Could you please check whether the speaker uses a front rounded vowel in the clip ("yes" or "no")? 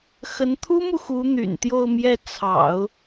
yes